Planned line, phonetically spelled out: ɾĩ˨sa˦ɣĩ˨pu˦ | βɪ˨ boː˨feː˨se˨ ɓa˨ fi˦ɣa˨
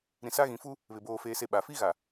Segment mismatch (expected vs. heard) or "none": p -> f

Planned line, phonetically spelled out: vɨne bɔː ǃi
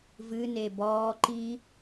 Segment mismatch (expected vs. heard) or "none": none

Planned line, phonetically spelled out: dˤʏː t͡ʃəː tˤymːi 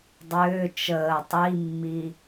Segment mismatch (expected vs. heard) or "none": y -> i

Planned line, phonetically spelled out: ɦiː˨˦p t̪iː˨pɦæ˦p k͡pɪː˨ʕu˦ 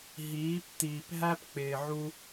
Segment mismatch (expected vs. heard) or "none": none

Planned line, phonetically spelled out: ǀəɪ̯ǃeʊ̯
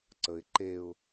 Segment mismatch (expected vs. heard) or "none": none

